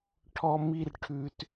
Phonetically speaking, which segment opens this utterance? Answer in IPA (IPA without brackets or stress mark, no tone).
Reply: ʈʰ